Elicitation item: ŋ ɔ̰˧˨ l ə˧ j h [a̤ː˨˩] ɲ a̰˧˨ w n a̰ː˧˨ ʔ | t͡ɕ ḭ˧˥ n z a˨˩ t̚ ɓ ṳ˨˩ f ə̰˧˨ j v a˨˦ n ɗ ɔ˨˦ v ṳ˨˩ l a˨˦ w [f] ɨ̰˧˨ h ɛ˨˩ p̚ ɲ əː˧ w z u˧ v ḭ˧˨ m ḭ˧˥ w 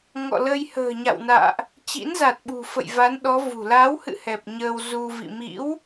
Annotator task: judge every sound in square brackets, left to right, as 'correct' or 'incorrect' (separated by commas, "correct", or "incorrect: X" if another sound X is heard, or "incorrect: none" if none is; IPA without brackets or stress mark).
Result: incorrect: ə̤ː˨˩, incorrect: h